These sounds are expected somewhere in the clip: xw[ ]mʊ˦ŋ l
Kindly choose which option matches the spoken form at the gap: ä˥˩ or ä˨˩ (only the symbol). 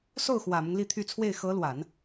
ä˨˩